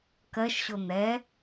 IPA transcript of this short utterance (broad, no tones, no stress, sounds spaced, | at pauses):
k ɜ ʃ ɕ o n̪ ɛ